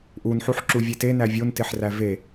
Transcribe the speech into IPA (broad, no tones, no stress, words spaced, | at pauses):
ʔunħuħ ǁuvʲete nævʲonteħræ ve